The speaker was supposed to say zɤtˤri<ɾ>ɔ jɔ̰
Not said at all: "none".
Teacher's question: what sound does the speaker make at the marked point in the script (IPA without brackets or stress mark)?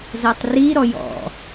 ɾ